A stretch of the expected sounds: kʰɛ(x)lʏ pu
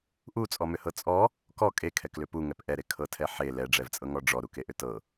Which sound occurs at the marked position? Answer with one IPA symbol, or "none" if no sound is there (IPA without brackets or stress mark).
k